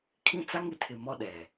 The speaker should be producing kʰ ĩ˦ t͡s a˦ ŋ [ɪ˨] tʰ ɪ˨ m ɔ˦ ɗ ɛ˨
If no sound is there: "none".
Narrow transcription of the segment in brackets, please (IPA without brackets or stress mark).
ɪ˨